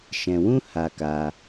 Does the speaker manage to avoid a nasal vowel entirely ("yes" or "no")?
no